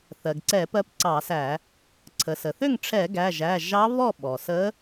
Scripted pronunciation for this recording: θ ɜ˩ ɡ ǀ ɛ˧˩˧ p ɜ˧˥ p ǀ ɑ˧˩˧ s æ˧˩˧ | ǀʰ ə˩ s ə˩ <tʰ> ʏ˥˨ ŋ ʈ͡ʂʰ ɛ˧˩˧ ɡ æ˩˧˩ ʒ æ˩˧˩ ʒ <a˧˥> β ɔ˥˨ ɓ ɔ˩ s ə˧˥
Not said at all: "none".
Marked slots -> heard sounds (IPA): θ, ɑ˧˥

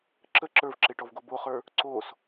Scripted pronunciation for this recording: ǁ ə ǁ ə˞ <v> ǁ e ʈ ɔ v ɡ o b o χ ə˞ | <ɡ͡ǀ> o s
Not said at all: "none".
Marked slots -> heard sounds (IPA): v, ǀ

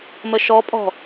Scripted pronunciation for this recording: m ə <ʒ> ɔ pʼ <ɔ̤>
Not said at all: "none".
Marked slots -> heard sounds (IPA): ʃ, ɔ̤

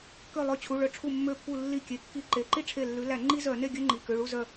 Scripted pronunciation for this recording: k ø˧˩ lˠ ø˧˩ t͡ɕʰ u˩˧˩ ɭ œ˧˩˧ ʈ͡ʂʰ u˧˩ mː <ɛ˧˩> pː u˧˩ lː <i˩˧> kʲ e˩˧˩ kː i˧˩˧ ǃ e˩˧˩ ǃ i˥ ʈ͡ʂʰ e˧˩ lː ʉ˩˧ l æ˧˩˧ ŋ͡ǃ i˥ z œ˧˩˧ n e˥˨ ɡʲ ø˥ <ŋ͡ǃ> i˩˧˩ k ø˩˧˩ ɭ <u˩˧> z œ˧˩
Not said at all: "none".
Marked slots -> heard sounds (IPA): ø˧˩, i˧˩, ŋ͡ǃ, u˥˨

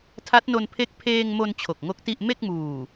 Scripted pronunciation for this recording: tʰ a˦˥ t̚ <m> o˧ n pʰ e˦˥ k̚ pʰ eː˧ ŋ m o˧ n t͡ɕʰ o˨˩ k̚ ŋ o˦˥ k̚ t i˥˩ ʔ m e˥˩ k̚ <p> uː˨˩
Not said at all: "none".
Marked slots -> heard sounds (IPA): n, m

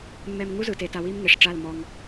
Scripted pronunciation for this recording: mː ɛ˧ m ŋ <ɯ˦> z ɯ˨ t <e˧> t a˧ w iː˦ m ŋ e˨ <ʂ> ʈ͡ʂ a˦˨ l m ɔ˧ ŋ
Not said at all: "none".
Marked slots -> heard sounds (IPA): u˦, e˧, ʂ

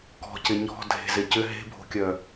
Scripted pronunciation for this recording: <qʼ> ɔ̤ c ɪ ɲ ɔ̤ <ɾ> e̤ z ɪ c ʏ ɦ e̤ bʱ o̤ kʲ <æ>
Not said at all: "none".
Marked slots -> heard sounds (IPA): k, dʱ, œ

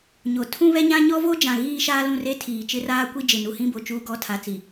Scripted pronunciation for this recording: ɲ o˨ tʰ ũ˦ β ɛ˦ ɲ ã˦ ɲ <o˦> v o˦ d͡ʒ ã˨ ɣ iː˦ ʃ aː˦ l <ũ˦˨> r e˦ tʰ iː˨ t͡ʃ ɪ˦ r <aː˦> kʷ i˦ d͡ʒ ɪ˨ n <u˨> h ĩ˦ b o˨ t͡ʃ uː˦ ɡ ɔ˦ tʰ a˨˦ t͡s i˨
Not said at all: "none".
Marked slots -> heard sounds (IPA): ɔ˦, ũ˦˨, aː˦, u˨

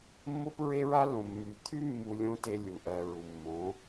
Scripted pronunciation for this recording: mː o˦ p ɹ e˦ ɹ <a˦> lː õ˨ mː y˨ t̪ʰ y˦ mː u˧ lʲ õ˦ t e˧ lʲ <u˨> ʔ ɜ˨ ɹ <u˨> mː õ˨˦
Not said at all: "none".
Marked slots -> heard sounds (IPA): a˦, u˨, u˨

